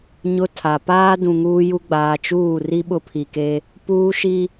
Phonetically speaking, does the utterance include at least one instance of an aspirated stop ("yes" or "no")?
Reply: yes